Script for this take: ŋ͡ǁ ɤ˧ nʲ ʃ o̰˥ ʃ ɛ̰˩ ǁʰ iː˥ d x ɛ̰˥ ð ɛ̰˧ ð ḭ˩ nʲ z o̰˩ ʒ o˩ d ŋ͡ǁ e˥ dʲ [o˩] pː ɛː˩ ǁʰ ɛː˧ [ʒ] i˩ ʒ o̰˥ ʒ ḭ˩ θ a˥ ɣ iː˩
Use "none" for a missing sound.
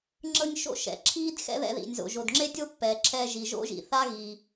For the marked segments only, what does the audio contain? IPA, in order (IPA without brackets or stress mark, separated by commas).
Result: o˥, ʒ